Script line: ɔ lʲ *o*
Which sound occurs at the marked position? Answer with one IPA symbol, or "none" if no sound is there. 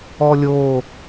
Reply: o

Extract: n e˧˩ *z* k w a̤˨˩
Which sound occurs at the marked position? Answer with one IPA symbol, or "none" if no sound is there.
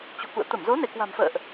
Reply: none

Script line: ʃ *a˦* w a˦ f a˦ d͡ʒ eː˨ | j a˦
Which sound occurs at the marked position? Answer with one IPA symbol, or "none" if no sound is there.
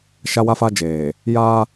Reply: a˦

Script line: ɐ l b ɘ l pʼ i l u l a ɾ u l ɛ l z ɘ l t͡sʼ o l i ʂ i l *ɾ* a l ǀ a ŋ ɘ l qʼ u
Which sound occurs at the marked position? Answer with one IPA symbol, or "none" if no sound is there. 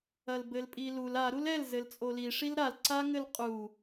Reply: ɾ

